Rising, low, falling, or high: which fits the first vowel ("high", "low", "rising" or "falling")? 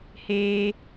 high